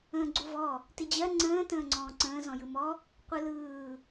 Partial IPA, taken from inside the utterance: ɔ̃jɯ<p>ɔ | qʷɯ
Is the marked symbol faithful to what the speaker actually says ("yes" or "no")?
no